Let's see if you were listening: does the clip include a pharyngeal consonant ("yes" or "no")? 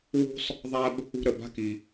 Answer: no